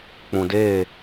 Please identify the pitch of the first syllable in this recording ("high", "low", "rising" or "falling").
low